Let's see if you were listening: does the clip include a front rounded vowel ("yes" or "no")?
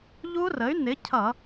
yes